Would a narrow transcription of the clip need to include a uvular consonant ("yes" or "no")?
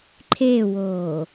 no